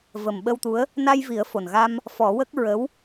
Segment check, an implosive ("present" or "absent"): present